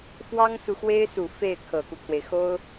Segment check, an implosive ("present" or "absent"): absent